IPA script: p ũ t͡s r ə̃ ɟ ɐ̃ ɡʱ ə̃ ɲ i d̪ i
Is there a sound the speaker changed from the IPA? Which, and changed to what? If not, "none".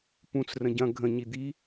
none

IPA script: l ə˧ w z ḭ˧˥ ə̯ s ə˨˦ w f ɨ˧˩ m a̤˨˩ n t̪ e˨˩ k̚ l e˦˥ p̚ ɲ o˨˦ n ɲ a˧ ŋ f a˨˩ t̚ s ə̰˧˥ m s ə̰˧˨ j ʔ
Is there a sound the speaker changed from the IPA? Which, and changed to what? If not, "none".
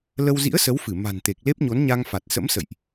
none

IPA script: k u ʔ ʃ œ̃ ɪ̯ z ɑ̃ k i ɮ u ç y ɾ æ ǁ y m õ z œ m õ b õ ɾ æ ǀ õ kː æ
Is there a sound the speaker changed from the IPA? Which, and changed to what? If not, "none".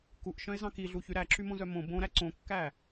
none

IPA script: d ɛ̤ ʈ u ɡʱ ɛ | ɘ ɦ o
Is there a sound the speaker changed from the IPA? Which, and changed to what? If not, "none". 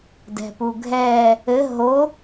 ʈ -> p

